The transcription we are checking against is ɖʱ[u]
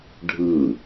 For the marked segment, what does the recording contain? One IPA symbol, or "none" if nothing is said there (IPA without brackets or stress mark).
ɯ